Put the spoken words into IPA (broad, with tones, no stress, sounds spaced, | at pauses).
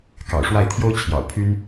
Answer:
k ɑ̰˨˩ ʊ̯ ʂ w a˥˩ ɪ̯ t̪ʰ j o˥ ʊ̯ t͡ɕʰ j ɑ̰˨˩ ʊ̯ pʰ y˥ n